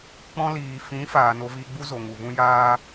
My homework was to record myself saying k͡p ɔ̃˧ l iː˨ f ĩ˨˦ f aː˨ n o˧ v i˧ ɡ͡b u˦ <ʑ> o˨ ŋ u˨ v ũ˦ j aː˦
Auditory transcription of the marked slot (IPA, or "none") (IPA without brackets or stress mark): z